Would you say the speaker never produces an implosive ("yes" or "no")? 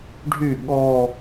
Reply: no